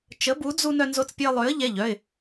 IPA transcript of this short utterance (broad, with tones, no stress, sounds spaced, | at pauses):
t͡ʃ ə˨˥ b u˨˥ d͡z u˦ n œ˦ n z o˦ t͡s pʲ ə˦ ɪ̯ lˠ ø˨˥ ə̯ ʎ ɛ˩˧˩ ʎ œ˩˧˩ ɪ̯